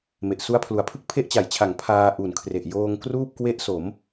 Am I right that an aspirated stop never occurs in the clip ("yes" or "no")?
no